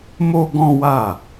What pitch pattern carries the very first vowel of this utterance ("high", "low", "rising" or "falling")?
high